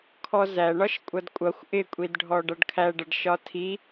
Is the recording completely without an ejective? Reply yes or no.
no